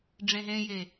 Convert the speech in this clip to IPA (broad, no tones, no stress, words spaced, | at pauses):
ɖ͡ʐẽɦẽje